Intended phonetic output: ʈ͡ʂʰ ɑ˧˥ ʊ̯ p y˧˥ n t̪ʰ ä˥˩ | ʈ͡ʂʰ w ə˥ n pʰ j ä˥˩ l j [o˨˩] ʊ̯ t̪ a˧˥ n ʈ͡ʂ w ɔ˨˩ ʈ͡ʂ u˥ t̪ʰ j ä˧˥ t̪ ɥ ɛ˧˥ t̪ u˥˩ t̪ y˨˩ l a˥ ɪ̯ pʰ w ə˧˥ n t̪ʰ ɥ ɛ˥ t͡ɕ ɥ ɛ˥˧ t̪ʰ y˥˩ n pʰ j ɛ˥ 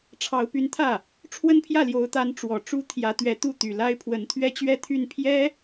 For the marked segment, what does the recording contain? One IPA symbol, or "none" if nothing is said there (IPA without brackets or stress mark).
o˧˥